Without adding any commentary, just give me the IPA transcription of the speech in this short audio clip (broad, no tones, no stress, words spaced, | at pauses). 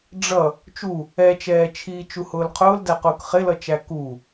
ɖ͡ʐʌ | t͡ʃu | ɛt͡ʃɛːt͡ʃʰiː t͡ʃuhʊːlqʰʊːldæ qʊːkχɪlʌt͡ʃæ ku